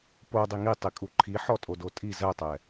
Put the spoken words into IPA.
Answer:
p o dˤ i ŋ i tˤ i kʼ u ǃʰ i ħ ɔ tʼ o d o tʼ i z ɜ tˤ ɛ

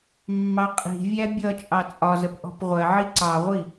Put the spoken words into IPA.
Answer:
mː ɑ qʼ i̤ vʲ æ bʲ ʌ t͡ʃʼ ɑ t͡sʼ ɒ z ə p ʔ ɔ̤ p ʁʷ ɜ ʕ i ǀ ɑ ʁʷ i

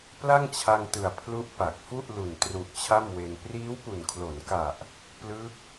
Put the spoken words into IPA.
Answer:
p l a˥˩ ŋ t͡ɕʰ a˧ ŋ t ɯ˨˩ a̯ pʰ l u˦˥ ʔ p a˨˩ k̚ f u˥˩ ʔ l u˨˩ n t r u˨˩ ʔ t͡ɕʰ a˥˩ m w e˧ n p r iː˦˥ w p u˨˩ n kʰ l o˩˦ n k a˨˩ ʔ | p l ɯ˦˥ k̚

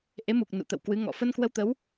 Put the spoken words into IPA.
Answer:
ʔ e˨˦ m u˨˩ k̚ n ṵ˧˨ t̪ ə̰˧˨ w k w ɨ˨˦ ŋ ɔ̰˧˨ f ə˧ n k w ə˧ w t̪ ə˨˦ w

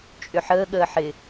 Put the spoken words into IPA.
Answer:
t͡ʃʼ ʏ ħ əː ɠ əː ħ ɪ

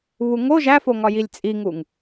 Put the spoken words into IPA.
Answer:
β u ŋ o ʒ æ f o ŋ ɒ j i lʲ t͡sʼ i ŋ u ŋ

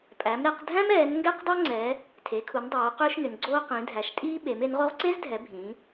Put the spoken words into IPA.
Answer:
pʼ æ˩˧ m ɾ ɛ˩˧ q dʱ æ̃˥ m ɛː˩˧ n ŋ ɡ ɛ˥ q dˤ o˥ ŋ͡ǀ ɛː˩˧ | tʰ e˩˧ kʰ u˩˧ n dˤ oː˩˧ q ʏː˥ ʃ n ʏ˩˧ n ɡ͡ǀ oː˥ q ĩ˩˧ dʱ æ˩˧ ʃ tʼ iː˥ ɓ e˩˧ m e˩˧ n ʁ o˥ ʁ ǀ e˥ z dʱ ɛ˩˧ bʱ ĩː˩˧

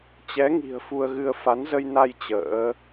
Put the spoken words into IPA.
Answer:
t͡ɕ ɛ˨˦ ŋ i̤˨˩ ə̯ f u˧ ə̯ ɣ ɨ˧ ə̯ f a˨˦ n z ə˧ j n a˧ j t͡ɕ ə̰ː˧˥

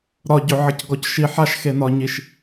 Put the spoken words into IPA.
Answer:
ɾ ɒ ɟ ʏ ʕ ə c ɡ ɔ c ʃ i ħ a ʃ x e n ɒ ɲ i ʃ

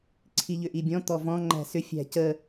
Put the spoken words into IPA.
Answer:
ǀʰ i ʎ ʏ ʔ i bʲ ɔ̃ t̪ ɔ v ɔ̃ ŋ͡ǃ æ̤ s ʏ fʲ æ̤ c ə

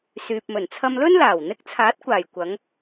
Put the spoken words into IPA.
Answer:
s yː˨ p̚ m ɵ˨˩ n t͡sʰ ɐ˧ m l ɵ˥ n l aː˨˩ w n̪ ɪ˧ k̚ t͡sʰ aː˨˥ t̚ kʷ aː˨˩ j kʷ ɐ˨˧ ŋ

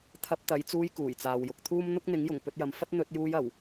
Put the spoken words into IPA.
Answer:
t̪ʰ ɐ˧ p̚ t̪ ɐ˨˧ j t͡s uː˧ j k uː˨˩ j t͡s aː˨ w j ʊ˨ k̚ t̪ʰ uː˥ m n̪ ʊ˥ k̚ n̪ ɪ˨˥ ŋ j ʊ˨˩ ŋ p ɵ˧ t̚ j ɐ˨˧ m f ɐ˥ t̚ n̪ ɵ˧ t̚ j uː˧ j ɐ˨˩ w

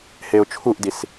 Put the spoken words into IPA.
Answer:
h e ʊ̯ t͡ʃʰ u ʔ d i s

